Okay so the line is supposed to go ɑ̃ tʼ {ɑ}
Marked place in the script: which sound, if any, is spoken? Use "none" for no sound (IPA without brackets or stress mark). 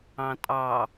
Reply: ɑ